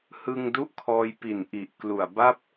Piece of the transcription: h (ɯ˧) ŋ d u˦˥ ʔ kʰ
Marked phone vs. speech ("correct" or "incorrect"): correct